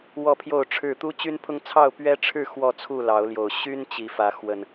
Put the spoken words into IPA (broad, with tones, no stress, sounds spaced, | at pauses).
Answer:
w ɔ˥˨ pʰ j o˥˨ ʊ̯ ʈ͡ʂʰ ɻ̩˥˨ t̪ u˦ t͡ɕ y˦ n pʰ ʊ˦ ŋ t͡sʰ ɑ˥˨ ʊ̯ p ɥ ɛ˦ ʈ͡ʂʰ ɻ̩˥˨ x w ɔ˥˨ t͡sʰ u˥˨ l ɑ˨˦ ʊ̯ l j o˨˩ ʊ̯ ɕ y˦ n t͡ɕ i˨˩ f ä˨˦ x w ə˨˩ n